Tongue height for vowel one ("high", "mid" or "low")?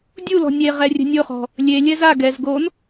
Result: high